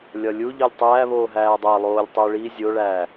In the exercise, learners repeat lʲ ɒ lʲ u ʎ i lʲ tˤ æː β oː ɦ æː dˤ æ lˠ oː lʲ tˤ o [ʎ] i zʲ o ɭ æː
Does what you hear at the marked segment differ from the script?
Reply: yes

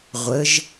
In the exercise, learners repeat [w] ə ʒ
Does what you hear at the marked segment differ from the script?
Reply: yes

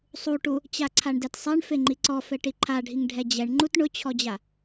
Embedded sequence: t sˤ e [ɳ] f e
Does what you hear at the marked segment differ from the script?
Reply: no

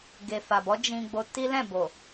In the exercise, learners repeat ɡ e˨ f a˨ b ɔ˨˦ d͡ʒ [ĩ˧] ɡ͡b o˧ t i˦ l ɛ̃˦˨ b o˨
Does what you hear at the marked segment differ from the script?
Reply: no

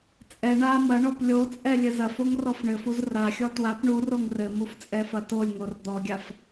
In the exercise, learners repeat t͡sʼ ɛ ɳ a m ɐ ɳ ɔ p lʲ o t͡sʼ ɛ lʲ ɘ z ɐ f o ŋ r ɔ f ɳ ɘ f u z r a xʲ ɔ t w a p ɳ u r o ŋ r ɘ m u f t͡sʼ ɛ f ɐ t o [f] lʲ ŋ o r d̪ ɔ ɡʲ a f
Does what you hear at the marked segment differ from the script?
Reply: yes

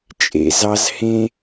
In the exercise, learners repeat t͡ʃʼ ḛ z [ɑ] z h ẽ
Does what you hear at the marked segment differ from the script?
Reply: no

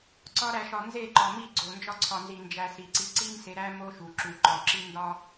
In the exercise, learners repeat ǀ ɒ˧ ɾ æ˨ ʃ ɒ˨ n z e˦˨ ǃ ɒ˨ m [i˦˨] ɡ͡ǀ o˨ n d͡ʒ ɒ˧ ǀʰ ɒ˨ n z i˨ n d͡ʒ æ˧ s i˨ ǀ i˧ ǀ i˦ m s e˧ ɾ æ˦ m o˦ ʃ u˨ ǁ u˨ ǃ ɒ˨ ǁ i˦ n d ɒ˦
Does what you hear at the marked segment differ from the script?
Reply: no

